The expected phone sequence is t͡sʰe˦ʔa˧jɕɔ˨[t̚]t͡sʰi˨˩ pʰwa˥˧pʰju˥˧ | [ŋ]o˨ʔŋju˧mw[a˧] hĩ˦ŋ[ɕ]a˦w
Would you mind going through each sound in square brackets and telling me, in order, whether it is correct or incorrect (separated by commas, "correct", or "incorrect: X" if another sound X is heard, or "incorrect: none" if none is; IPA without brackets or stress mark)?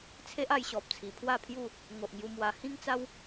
incorrect: p̚, correct, correct, incorrect: t͡s